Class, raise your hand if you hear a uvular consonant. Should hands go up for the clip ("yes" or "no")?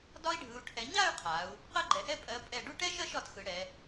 yes